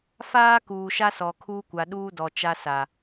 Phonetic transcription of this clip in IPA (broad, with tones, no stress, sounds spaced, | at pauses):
f aː˦ k uː˨ ʃ a˦ s ɔ˨ kʰ uː˦ kʷ a˨ ɗ uː˦ d ɔ˨ t͡ʃ a˦ s a˨